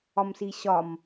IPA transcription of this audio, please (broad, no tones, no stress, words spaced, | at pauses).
ɒmsiɕɒm